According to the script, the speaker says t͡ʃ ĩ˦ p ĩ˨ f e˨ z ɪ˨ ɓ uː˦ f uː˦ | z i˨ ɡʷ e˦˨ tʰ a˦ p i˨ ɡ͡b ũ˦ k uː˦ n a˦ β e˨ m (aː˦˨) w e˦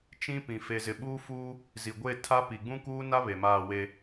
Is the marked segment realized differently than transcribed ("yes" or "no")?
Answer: no